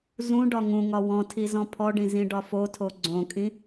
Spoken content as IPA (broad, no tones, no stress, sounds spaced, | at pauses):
z ũ ɖ ɒ ŋ ũ ŋ ɒ w ɔ̃ tʰ i z ɔ̃ pʰ ɔ ɖ ĩ z ĩ ɖ ɒ f o tʰ o ɡ͡ǀ õ kʼ ĩ